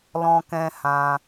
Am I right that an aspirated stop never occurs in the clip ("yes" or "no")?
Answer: yes